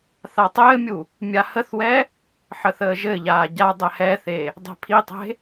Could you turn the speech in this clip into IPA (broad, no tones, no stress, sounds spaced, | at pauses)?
θ a tˤ ɘː mʲ u | mʲ a h ə θ w ɛ | ħ ə θ əː ʒ ɘ ʎ aː ɟ a dˤ ɛ h ɛ θ e | dˤ ɛ̤ pʰ i tˤ e̤